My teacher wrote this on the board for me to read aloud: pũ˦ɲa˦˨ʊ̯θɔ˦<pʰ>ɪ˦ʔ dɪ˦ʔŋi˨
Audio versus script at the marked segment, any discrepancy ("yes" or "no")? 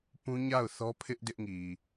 no